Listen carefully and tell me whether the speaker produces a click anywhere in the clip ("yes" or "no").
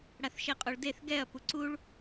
yes